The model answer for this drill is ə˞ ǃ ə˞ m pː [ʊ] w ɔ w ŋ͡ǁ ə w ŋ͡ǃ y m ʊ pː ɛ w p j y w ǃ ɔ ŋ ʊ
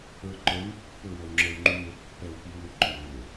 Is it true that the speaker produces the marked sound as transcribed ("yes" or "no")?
yes